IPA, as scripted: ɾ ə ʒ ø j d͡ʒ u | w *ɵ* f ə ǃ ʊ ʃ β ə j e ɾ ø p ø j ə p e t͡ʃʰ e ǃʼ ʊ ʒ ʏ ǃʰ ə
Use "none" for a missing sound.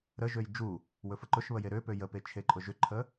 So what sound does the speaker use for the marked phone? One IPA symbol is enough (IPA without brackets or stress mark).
ɵ